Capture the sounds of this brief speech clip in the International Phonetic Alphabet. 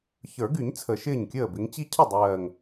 ç ə˞˨˩˦ ɡ y˨˩˦ ɲ t͡sʰ ə˨˩˦ ʃ ɪː˥˩ ɲ kʲ əː˥˩ b ɪ˨˦ ŋ t͡ɕ i˦ cʰ ə˥˩ dˤ ɜː˨˩ ŋ

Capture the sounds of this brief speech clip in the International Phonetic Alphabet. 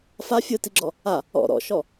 f a fʲ ɯ t i ɡ͡ǁ ɔ | a | ɔ̰ ɾ ɔ̰ ʃ ɔ

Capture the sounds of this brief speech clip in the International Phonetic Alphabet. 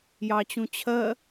j ɑ t͡ɕ ũ t͡ɕʰ ɜ

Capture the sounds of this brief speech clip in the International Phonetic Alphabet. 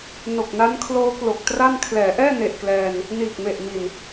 n o˨˩ k̚ n a˦˥ n kʰ l oː˦˥ k l o˨˩ k̚ t r a˥˩ n kʰ l ɛː˩˦ ʔ ɛː˥˩ n e˨˩ ʔ k l ɛː˧ n | n iː˨˩ k̚ m e˨˩ ʔ m i˨˩ n

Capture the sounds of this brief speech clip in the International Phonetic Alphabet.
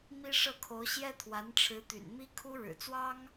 m i˥ ʂ ɤ˥˩ kʰ o˧˥ ʊ̯ ɕ j ɛ˥ t̪ʰ w a˧˥ n ʈ͡ʂʰ ɻ̩˧˥ t̪ y̰˨˩ n m i˥ kʰ u˥ ɻ ɻ̩˨˩ t͡s w ɑ˥ ŋ

